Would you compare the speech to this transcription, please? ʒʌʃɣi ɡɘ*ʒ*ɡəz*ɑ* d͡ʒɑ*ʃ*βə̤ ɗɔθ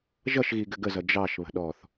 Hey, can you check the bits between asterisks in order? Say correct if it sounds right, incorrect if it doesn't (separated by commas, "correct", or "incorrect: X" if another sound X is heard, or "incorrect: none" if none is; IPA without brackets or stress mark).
incorrect: none, incorrect: ʌ, correct